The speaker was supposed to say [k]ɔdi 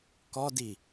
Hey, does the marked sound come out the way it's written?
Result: yes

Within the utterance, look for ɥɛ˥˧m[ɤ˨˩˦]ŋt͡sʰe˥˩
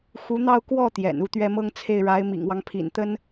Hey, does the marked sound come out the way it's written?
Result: no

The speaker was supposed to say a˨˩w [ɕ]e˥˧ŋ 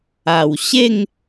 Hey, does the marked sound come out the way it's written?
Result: yes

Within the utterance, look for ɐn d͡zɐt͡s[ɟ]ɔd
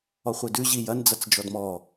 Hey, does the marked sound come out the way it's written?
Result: no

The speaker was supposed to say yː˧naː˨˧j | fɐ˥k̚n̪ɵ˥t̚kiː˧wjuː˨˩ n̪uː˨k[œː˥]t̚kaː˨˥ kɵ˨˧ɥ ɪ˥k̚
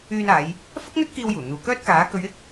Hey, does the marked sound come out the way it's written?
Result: yes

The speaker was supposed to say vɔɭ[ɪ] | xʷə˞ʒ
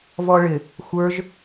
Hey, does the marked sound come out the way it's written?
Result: yes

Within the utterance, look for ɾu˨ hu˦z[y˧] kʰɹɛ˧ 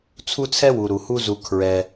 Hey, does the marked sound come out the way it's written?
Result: no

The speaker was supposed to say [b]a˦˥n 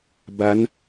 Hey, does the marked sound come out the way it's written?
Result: yes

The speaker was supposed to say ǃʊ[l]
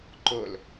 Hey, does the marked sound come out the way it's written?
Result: yes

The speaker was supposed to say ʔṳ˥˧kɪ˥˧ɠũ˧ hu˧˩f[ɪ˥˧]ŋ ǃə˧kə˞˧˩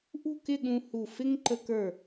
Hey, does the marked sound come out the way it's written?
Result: no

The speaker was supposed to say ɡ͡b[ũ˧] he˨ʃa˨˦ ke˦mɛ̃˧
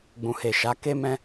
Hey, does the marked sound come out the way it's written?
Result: no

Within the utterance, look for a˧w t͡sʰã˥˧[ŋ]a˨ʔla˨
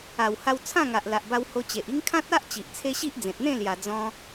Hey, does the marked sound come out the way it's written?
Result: yes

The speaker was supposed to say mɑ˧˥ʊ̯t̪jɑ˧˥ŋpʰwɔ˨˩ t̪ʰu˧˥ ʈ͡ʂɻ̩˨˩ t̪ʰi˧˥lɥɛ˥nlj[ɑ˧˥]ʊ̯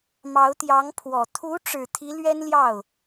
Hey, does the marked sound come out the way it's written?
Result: no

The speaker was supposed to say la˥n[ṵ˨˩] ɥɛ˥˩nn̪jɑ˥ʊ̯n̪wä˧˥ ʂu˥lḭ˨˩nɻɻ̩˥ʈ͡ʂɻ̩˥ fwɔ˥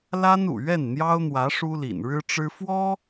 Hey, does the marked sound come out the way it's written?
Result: yes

